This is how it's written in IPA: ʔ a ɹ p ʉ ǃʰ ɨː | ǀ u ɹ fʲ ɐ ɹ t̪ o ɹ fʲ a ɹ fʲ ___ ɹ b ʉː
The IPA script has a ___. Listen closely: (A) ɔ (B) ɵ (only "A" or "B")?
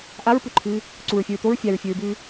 B